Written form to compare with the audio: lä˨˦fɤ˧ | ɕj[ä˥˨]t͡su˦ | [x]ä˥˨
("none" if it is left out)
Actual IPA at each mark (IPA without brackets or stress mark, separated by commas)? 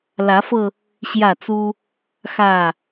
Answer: ä˥˨, x